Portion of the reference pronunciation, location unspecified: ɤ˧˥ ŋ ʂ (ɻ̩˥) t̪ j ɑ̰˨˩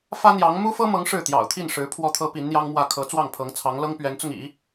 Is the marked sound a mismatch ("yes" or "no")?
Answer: yes